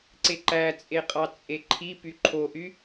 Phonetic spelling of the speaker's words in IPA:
ǀeǃæt͡sʼeqʼɑ t͡sʼeǃʰi pyǃʰoʔy

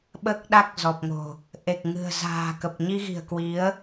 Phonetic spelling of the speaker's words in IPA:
ɓəː˦˥k̚ɗa˦˥k̚zɔ˨˩p̚ŋo̤˨˩ | ʔe˨˩k̚ ŋɨ̤˨˩ə̯ za̤ː˨˩ kə˨˩p̚ɲi˧ɣi̤˨˩ə̯kwi˨˦ə̯

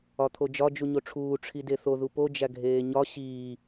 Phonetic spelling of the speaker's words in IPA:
ɒt̪ʰod͡ʒɒ d͡ʒuɲoʈ͡ʂʰuː ʈ͡ʂʰideθo ðupo d͡ʒæɡʱeːɲɒ ɕiː

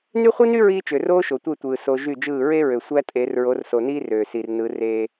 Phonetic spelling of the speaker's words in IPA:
ny˦χʷi˦ny˦ ɹiː˦t͡ʃø˨ roː˦ʃo˨tʷe˦˨tʷɯː˨ so˦ ʒy˦˨d͡ʒɯː˦˨ ɹe˦ɹø˨ sʷæ˦tʼe˨˦r ɹo˨˦rso˨niː˦ røː˨si˨r nɯ˨˦r eː˦

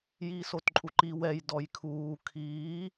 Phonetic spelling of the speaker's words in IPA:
jiːsotǃʼuǃi wɛj dɔjkʰuː kʰiː

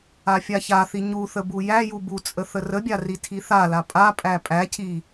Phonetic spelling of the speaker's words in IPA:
afʲaçaθi ɲuθə bujæju but͡sʼə θərəbʲa ritʰiθala pʼa pʼæpʼæcʰi

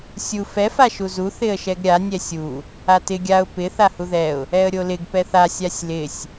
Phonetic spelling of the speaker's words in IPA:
sʲu fɛ faʃuzu θɪə̯ʃɛɡɾʲa nʲɛsʲu | atɪ ɡʲaʊ̯ pɪ θahuðɛʊ̯ | ɛə̯ɾʲolɪɡ pɛθa sʲasʲlɪsʲ

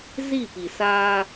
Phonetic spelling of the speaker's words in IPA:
zi˦˨pi˨saː˦

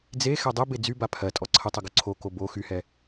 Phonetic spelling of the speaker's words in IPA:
d͡ze xɛdˤebe d͡zyba pʰɜtʼɔ ǀʰətˤə ɡoǀʰoko bo xyhɛ

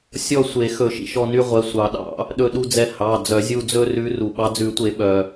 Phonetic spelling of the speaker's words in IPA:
sʲɔ˦˨sʷe˨˩˦ xɵ˨˩˦ʃḭ˩ʃɔ˦˨ ny˦ʁʷɛ˩˧˩sʷɑ˨˩˦ɗɑ̰˨˩˦ | ɗɵ˦˨ɗu˦d͡zɛ˦˨ hɑ˩˧˩ d͡zœ˨˩˦zʲu˦˨ d͡zɵ˦rʉ˨˦ ru˩ɓɑ˨˦d͡zʉ˨˩˦tʷe˨˩˦ ɓœ˩

